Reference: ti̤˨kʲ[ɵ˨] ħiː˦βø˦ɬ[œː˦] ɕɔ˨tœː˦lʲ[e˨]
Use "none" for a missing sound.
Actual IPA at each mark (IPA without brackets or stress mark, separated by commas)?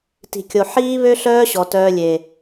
o˨, œː˦, e˨